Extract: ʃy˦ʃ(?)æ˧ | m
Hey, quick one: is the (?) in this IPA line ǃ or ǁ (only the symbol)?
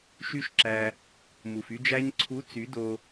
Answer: ǁ